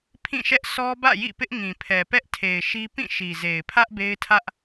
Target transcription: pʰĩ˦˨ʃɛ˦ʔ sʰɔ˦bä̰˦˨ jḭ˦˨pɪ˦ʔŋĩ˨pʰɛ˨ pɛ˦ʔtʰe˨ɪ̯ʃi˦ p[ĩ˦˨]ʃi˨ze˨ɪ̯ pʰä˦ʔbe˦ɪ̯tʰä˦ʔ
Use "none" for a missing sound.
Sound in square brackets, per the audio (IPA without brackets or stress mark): ĩ˦˨